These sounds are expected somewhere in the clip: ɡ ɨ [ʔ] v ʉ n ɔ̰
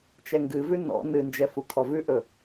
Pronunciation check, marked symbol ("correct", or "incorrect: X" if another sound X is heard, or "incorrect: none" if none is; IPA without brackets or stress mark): incorrect: none